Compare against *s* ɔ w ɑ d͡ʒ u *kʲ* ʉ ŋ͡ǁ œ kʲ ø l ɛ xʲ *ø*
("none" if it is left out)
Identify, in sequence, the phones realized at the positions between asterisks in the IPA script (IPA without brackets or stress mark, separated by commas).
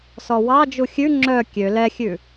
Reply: s, xʲ, ʉ